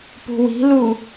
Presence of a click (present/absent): absent